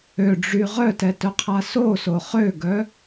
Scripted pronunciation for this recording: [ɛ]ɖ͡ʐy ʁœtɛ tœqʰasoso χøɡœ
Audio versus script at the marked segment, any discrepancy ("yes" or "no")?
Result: yes